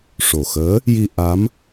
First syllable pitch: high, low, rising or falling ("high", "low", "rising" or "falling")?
low